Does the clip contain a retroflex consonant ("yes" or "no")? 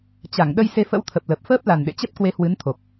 no